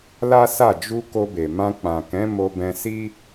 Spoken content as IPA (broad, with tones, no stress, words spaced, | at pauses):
la˦sa˦˨ d͡ʒu˧ ko˧be˨mã˧ k͡pã˨ kɛ̃˨˦ mo˧bɛ̃˧si˦